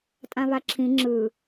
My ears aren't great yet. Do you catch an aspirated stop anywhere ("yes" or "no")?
yes